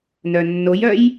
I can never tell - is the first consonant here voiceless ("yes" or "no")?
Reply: no